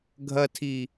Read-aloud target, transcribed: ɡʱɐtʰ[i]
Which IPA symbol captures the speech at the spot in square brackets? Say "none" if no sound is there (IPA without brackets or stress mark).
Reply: i